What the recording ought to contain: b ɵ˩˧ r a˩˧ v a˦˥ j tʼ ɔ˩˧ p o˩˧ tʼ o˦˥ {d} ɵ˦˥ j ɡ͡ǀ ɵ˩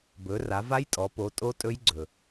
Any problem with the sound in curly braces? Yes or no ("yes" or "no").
yes